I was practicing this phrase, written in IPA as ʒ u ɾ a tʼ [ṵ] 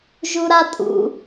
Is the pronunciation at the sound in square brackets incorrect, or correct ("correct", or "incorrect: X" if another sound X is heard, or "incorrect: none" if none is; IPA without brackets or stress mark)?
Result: correct